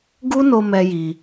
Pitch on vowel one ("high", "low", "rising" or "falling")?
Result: high